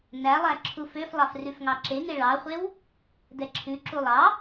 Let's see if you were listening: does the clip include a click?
yes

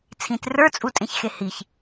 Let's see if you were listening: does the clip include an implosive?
no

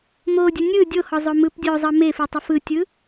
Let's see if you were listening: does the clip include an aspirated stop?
no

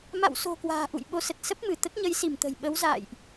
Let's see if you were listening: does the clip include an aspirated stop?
no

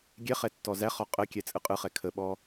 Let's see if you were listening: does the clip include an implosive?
yes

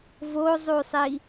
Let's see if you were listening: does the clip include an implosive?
no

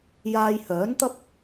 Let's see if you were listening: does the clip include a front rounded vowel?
yes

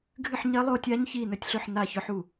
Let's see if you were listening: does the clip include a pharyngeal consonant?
yes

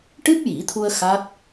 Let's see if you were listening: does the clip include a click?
no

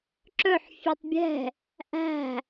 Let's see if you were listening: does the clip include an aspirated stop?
no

